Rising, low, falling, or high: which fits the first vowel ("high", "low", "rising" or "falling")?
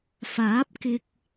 rising